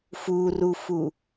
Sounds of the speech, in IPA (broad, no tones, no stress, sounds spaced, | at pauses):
f u r u f u